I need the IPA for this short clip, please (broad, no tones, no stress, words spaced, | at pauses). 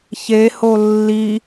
çeho lːi